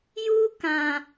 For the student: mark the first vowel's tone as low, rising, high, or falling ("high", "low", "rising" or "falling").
high